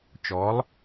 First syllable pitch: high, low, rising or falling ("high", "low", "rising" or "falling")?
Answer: rising